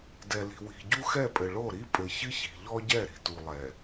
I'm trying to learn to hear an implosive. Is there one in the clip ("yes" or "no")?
no